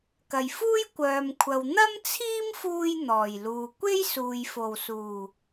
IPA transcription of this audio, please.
kɐ˨˩jfuː˥jkʷœː˨mkʷʰɐ˨w n̪ɐ˥mt͡sʰiː˥mfuː˧j n̪ɔː˨˩jluː˨ kʷe˥jsuː˨j fo˨˩wsuː˨˩

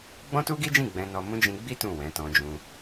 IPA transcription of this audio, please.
ɡ͡bɔ̃˦tu˦ɡi˦d͡ʒĩ˦˨ ɡ͡bɛ̃˧nɔ˧mũ˦ d͡ʒĩ˧ɡ͡bi˦ tũ˦˨wɛ̃˨˦tɔ̃˧d͡ʒũ˧

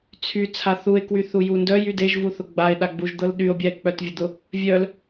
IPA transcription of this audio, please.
t͡sʰy t͡sʰaθue̯ kwyθujundœ jydeʒ vuθʊɡ͡bae̯ ɗaɡ͡buʒd̪ɤlɗyo̯ bʲae̯k͡pœtvʲʊd̪ʊ | vʲœl

